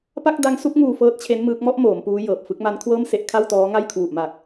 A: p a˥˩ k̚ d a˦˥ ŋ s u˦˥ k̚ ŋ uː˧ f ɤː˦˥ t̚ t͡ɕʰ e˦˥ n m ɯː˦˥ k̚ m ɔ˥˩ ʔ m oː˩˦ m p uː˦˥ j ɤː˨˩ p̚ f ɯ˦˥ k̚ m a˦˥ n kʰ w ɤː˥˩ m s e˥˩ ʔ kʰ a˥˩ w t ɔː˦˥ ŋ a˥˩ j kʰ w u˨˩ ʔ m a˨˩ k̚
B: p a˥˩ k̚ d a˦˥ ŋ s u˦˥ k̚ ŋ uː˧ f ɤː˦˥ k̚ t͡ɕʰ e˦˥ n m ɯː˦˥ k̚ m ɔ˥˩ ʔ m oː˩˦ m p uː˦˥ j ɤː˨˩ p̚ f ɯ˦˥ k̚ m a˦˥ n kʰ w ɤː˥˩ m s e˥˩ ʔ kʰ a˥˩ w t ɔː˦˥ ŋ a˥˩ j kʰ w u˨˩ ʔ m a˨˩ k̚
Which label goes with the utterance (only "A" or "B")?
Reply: A